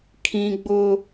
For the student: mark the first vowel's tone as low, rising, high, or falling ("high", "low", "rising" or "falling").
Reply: high